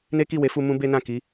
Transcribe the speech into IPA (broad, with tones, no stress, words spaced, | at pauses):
ne˦ki˦˨we˨˦fu˧ mũ˦be˦nã˦˨ ki˨˦